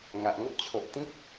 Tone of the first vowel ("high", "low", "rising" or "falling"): low